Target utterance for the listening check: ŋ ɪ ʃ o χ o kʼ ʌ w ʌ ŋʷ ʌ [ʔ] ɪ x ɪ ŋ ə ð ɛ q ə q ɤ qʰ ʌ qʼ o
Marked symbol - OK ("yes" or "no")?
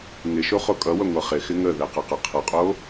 no